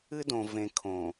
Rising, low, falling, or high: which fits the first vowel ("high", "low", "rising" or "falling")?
high